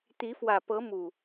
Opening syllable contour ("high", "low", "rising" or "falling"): rising